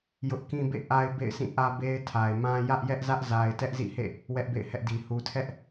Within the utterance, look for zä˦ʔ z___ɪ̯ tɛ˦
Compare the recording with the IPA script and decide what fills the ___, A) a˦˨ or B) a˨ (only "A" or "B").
B